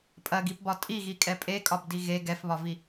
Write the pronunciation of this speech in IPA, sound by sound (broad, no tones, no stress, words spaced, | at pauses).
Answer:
pʼɐɡipbɒ tʼiɣikʼɛ pʼekʼɒbdi ɣe ɡɛfβɒvi